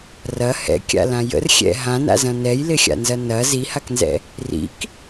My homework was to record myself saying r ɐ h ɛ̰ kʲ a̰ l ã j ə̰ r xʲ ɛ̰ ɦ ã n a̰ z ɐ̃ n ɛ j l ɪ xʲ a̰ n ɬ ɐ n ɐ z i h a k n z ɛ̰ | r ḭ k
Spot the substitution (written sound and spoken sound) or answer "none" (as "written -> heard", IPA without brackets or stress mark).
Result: ɬ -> z